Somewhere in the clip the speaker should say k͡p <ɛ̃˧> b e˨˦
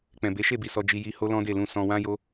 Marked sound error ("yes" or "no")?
yes